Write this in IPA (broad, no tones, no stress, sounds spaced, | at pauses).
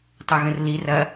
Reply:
tˤ ɐ ɣ ə̃ r l i r ɐ